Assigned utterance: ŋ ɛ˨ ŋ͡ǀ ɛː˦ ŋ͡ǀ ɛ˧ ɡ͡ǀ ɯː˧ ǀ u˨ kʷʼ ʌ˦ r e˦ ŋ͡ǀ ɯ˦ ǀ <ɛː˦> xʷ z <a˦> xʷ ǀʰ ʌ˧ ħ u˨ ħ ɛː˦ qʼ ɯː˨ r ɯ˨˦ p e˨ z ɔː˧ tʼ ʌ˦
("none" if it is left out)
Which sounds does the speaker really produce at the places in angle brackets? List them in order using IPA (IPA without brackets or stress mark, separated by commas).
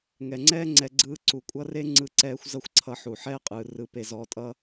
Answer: ɛː˦, ʌ˦